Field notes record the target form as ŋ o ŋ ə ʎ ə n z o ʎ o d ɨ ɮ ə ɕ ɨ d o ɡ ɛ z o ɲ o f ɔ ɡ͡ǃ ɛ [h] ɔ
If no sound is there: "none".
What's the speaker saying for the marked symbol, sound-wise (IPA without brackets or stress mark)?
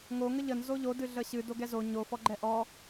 ʔ